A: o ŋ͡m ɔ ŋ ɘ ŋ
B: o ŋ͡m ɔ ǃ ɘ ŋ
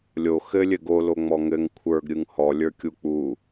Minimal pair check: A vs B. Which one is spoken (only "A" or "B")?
A